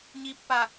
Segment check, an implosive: absent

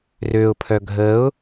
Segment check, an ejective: absent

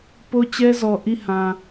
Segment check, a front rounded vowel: absent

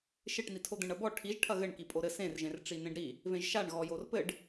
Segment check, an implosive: absent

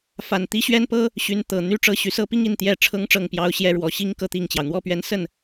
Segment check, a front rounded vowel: present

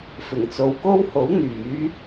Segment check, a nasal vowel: absent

